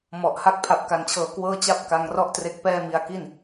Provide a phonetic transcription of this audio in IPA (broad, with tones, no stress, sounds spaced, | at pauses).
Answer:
m ɔ˨˩ ʔ h a˥˩ k̚ pʰ a˨˩ p̚ k a˨˩ n t͡ɕʰ ɤː˨˩ k w ɤː˥˩ t͡ɕ a˥˩ p̚ k a˧ ŋ r ɔ˥˩ ʔ t r e˦˥ k̚ p ɛː˥˩ m i˧ a̯ k i˥˩ n